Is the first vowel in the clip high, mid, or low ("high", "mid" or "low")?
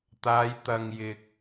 low